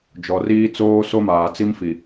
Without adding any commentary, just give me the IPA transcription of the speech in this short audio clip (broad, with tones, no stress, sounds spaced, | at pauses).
d͡ʒ ɔ˨ r iː˦ t͡s oː˦ s o˦ m aː˨ t͡s i˦ m f i˨